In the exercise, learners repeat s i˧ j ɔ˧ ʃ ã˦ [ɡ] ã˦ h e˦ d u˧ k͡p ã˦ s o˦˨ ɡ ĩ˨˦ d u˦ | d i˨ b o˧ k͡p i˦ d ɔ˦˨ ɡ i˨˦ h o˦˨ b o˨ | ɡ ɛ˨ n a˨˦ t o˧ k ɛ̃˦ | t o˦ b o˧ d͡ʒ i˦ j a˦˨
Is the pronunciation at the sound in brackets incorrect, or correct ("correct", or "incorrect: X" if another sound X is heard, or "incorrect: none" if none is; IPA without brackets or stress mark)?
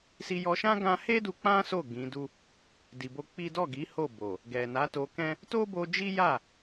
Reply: correct